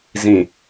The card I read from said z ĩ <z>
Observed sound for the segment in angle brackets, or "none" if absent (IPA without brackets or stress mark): none